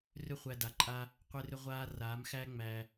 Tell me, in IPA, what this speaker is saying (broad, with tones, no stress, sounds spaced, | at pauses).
r ʏ˧ χʷ æ˨ d a˨ ǃʼ a˧ | qʷ e˧ r ʏ˧ ʁʷ aː˧ r aː˨˦ m x æ˦ ŋ͡m æ˧